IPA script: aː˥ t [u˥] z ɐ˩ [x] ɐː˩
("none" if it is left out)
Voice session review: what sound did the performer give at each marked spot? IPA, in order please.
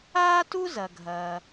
u˥, ɡʱ

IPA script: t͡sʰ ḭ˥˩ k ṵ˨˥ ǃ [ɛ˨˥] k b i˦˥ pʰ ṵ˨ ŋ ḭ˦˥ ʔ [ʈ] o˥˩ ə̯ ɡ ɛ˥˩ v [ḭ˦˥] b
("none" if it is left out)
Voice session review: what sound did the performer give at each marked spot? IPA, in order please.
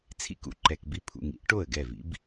ɛ˨, ʈ, ḭ˦˥

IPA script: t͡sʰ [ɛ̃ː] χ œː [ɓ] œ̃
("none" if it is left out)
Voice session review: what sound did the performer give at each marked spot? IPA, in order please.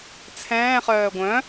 ɛ̃ː, ɡʷ

